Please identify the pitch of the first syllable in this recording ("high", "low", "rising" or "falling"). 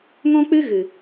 high